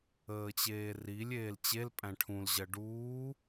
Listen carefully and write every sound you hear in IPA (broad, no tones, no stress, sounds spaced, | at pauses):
əː t͡ɕ eː r i lʲ eː l t͡ɕ e l pʼ æ̃ ʈʰ ũ l ʑ ɜ ɖ uː